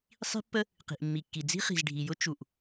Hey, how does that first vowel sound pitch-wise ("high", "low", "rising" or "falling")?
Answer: high